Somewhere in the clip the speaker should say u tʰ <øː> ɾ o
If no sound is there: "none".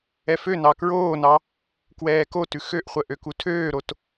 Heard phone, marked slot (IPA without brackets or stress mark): øː